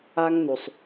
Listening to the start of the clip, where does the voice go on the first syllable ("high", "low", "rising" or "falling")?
high